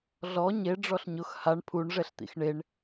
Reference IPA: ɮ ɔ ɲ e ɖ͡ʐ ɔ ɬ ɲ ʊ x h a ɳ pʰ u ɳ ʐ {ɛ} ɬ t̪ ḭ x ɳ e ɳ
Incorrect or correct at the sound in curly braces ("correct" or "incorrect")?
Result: correct